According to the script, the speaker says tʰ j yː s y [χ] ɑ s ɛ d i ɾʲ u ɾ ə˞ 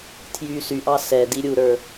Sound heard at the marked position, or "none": ʔ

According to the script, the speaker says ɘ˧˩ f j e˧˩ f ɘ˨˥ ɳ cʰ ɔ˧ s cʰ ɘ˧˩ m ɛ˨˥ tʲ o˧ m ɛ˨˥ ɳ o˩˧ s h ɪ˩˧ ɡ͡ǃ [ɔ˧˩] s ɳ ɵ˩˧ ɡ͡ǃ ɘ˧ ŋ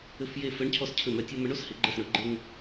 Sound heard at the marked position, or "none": ə˧˩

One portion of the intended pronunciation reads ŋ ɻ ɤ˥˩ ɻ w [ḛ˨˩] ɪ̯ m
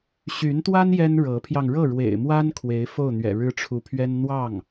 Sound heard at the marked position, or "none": ḛ˨˩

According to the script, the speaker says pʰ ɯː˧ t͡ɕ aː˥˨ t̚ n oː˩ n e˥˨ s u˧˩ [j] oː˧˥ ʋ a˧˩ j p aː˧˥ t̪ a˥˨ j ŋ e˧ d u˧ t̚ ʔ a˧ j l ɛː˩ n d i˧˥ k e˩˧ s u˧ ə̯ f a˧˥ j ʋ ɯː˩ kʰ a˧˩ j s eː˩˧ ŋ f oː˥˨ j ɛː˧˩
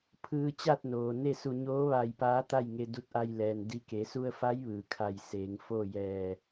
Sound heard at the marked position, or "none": ɲ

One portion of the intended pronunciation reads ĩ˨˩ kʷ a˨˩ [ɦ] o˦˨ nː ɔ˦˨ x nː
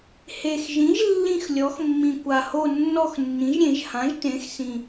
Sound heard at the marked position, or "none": h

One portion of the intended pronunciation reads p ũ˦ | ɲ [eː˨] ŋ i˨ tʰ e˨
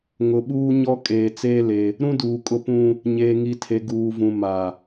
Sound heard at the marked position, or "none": eː˨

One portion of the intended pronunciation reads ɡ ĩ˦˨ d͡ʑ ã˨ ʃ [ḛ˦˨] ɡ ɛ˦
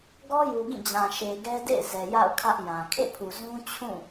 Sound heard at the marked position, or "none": e˨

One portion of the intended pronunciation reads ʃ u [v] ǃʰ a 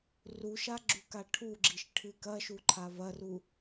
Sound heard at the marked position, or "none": none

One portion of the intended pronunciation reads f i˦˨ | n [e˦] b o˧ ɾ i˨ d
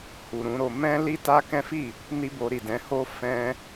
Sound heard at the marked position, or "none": i˦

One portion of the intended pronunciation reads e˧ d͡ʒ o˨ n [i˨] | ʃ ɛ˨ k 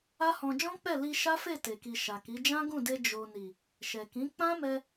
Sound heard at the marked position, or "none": i˨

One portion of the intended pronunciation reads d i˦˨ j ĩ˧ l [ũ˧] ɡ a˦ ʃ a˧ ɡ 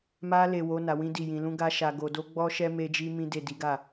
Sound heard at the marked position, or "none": ũ˦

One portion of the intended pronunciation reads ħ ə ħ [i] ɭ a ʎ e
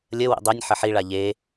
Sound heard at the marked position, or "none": i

